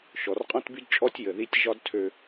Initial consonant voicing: voiceless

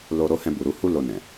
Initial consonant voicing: voiced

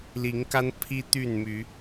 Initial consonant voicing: voiced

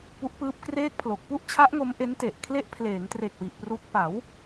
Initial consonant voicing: voiceless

